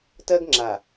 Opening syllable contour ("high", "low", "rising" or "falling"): high